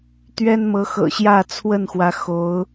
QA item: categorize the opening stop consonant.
plain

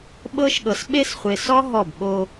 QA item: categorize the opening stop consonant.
implosive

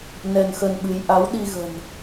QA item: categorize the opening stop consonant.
implosive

